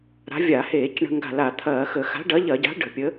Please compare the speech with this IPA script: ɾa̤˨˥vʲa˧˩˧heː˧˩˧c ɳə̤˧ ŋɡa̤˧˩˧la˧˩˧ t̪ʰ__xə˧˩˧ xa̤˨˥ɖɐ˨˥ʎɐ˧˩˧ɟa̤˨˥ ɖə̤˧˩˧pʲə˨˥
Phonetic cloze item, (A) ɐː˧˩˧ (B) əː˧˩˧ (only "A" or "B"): A